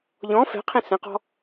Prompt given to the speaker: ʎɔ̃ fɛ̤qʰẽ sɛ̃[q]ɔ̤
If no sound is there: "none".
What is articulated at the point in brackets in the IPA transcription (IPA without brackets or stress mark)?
q